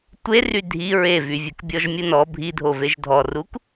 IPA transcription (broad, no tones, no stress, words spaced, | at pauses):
tʷery dʱi ɹevyvʲɵk bʲɔʒmʲunɔ bʱidʱoveʒ dʱɔruk